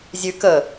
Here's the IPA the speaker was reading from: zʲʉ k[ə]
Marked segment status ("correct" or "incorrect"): correct